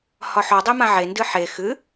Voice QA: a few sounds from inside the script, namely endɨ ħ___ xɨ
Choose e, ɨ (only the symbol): e